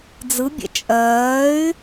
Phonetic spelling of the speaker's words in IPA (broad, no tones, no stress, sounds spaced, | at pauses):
d͡z ɯ bʲ ɛ̰ t͡ʃʼ ɜː y̯